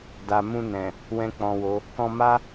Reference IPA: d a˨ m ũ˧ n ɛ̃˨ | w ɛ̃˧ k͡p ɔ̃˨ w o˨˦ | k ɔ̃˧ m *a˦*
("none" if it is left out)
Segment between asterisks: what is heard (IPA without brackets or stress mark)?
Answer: a˦